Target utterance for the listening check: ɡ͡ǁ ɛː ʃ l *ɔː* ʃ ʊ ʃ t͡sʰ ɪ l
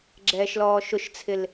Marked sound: correct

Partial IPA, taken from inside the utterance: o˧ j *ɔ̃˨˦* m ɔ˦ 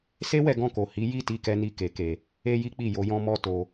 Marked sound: incorrect: ɔ̃˦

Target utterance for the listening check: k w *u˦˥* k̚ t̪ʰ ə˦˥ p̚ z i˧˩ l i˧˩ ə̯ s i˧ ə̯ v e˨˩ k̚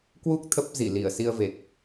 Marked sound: correct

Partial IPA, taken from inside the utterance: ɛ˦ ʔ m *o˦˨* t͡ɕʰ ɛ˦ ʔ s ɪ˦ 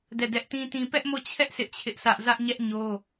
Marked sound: correct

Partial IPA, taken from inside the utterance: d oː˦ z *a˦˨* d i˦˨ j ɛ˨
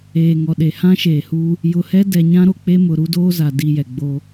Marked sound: incorrect: a˨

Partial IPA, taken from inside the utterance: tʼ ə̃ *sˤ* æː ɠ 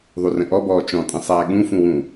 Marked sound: correct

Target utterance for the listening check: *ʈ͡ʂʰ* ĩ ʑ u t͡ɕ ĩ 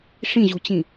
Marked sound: incorrect: ʂ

